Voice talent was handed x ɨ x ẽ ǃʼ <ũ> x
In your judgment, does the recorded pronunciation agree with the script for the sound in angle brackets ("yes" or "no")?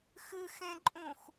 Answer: yes